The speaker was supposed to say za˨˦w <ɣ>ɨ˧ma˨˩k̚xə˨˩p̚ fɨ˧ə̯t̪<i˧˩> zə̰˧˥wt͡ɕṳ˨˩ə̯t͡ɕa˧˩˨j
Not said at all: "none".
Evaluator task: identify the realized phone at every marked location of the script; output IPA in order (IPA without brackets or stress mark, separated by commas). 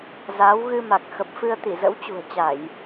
ɣ, i˧˩